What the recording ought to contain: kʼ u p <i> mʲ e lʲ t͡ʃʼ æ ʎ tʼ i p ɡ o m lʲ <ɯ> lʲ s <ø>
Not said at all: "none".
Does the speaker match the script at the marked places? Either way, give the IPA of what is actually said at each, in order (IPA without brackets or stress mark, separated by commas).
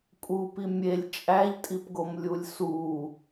i, u, u